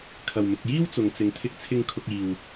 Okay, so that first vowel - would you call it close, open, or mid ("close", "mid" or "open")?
open